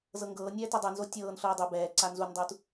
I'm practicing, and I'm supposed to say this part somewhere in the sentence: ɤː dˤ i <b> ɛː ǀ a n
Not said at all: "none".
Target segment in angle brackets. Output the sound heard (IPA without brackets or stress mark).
b